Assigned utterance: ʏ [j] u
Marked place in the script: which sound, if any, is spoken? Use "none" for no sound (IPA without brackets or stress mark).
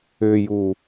j